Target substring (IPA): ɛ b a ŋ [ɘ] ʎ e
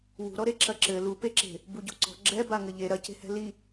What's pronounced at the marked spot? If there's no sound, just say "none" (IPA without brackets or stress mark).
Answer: ɘ